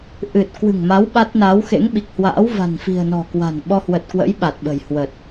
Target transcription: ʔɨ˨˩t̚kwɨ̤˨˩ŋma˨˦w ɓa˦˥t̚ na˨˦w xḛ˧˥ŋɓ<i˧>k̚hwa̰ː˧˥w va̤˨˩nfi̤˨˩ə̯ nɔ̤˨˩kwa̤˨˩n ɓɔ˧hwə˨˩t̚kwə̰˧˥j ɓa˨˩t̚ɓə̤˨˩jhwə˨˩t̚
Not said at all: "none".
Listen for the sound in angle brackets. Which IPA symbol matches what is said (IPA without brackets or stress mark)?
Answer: i˨˩